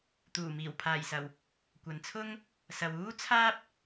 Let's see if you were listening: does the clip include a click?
no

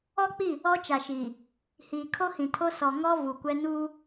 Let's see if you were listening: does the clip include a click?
no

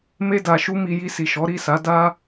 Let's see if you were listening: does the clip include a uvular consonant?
no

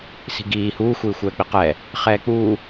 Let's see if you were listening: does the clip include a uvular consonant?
yes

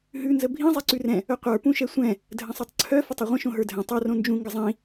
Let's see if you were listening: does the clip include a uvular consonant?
yes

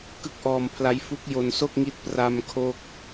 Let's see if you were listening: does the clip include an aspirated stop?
yes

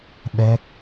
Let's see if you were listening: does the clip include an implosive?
yes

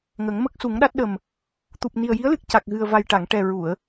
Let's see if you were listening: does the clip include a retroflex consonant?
yes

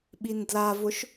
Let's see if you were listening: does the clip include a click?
no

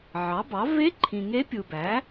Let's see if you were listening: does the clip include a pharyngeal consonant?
yes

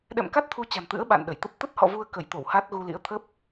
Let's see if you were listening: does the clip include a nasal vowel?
no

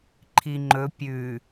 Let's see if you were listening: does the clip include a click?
yes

